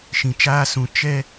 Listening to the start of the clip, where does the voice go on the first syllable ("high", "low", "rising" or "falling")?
low